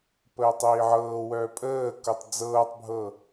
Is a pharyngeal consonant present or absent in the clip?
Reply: present